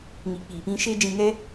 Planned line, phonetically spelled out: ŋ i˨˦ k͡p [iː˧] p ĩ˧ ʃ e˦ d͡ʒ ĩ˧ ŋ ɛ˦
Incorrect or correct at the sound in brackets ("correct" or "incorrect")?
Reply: incorrect